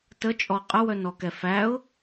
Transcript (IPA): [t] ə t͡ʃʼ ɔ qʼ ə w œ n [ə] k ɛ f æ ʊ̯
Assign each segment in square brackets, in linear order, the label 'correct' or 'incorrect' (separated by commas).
correct, incorrect